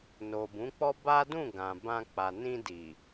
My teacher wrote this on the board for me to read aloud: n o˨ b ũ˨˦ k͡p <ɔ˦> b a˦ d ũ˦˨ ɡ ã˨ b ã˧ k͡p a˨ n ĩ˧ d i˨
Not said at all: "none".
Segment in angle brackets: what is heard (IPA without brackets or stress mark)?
ɔ˦